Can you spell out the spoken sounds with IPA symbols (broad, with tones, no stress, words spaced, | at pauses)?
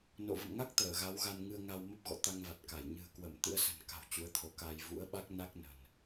no̰˧˨ və̰˧˨mŋa˦˥k̚ t̪əː˧˩ɣa˨˦wɣa˧n ŋɨ˧ə̯ŋa˧w mə˦˥p̚ɣɔ̰˧˨ t̪a˧ŋva˨˩t̚ka˧˩j ɲɨ̤˨˩ə̯kwə˧˩m t̪ɨ̰˧˥ə̯sə̤˨˩n ka̤˨˩w t͡ɕu˨˦ə̯t̪ʰo˨˦ka˧j vṵ˧˥ə̯ɓa˦˥k̚ na˦˥k̚nə̤˨˩n